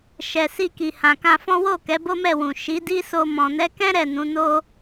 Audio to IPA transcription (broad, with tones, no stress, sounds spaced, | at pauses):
ʃ ɛ˨ s i˧ k i˨ h ã˨ k ã˧ f ɔ̃˦ w o˦˨ k ɛ˨˦ b o˦ m ɛ˦˨ w ũ˨ ʃ i˨˦ d i˦ s o˧ m ɔ̃˨ n ɛ˨˦ k ɛ̃˦ ɾ ɛ˦˨ n ũ˨˦ n o˦